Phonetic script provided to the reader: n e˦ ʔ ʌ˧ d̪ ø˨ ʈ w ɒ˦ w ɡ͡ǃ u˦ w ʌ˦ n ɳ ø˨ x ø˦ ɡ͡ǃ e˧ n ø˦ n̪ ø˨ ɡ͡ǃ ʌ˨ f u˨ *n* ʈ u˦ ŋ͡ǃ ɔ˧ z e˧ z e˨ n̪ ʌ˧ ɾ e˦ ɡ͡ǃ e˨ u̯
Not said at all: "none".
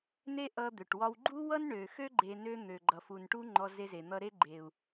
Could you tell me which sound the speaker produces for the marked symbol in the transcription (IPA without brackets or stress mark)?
n